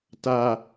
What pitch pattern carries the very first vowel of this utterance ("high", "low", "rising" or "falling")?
low